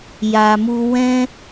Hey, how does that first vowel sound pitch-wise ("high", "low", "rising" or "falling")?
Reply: low